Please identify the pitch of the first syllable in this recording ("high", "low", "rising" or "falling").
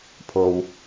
low